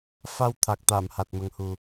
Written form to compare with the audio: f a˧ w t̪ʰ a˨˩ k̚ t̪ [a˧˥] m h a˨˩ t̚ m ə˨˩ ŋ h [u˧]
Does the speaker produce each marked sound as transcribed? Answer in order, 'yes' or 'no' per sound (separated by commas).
no, no